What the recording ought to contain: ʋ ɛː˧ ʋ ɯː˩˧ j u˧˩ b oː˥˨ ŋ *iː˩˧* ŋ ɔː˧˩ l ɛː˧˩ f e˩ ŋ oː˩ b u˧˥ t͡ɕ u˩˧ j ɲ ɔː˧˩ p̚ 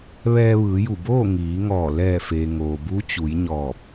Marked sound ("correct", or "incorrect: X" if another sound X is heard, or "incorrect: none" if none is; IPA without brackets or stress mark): correct